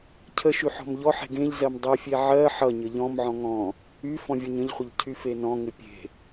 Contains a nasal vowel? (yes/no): yes